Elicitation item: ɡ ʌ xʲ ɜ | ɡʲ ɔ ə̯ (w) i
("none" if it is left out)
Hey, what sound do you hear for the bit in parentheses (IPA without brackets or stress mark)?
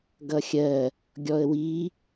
w